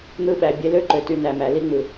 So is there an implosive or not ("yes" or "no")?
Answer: yes